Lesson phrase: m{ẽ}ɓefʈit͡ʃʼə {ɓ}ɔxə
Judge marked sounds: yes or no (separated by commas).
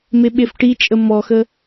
no, no